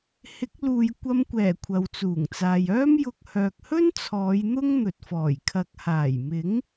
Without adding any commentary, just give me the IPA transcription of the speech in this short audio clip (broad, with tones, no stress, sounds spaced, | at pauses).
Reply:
h ɪ˨˥ k̚ l uː˨ j kʷ ɐ˧ m kʷ ɛː˨˩ kʷʰ ɐ˨ w t͡s uː˨˩ ŋ t͡s aː˨ j œː˥ m j ʊ˧ k̚ h œː˨ k̚ h ɵ˥ n t͡sʰ ɔː˨˧ j n̪ ʊ˥ ŋ n̪ ɵ˨ t̚ f ɔː˨˩ j kʰ ɐ˨ k̚ h aː˨˩ j m ɪ˨˥ ŋ